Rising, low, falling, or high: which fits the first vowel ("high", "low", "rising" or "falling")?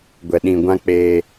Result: low